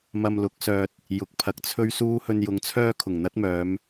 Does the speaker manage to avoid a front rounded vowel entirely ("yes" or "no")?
no